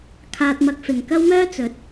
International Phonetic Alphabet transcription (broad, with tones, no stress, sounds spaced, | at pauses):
kʰ aː˧ t̚ m ɐ˧ k̚ f ɪ˨ ŋ k ɐ˥ w m œː˥ t͡s ɵ˨˥ t̚